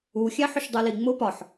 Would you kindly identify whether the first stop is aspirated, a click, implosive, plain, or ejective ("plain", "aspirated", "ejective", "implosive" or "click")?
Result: plain